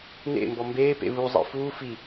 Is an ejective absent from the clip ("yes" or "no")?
yes